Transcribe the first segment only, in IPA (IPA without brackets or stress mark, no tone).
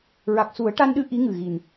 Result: ɹ